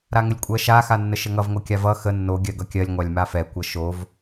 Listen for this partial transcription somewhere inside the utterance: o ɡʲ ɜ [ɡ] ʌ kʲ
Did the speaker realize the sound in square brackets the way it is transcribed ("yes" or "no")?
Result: yes